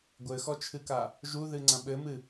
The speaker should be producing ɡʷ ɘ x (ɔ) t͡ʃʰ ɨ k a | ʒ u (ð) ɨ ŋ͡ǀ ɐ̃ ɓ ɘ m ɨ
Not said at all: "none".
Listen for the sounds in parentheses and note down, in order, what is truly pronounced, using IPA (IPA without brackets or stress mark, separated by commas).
ɔ, ð